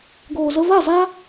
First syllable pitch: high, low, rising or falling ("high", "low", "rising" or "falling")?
low